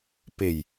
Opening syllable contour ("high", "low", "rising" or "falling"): low